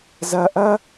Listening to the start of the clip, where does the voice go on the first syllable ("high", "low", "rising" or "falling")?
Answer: low